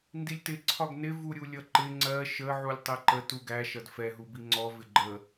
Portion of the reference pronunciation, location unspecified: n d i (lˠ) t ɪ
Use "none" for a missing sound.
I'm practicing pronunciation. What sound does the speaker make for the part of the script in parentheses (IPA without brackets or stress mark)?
lʲ